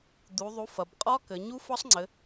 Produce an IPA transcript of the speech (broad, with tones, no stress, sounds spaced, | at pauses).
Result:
d̪ u˩˧ ðˤ u˩˥ f ɐ˩˧ b qʼ ɒ˦˥ k ɘ˩˧ ɲ u˦˥ f ɒ˦˥ sˤ ŋ͡ǀ ɘ˩˧